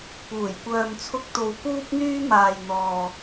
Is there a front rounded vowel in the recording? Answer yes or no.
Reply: yes